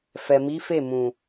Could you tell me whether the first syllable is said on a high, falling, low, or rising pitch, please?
low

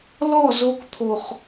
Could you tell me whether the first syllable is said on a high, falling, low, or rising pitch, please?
falling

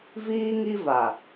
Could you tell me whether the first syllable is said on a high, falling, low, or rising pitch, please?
high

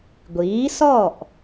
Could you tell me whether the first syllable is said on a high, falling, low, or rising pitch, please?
rising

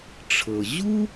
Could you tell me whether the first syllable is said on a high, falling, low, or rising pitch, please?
low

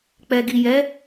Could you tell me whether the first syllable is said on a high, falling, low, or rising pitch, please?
low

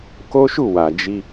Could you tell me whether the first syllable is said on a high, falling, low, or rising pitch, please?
high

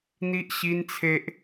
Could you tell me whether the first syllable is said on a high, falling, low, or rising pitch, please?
high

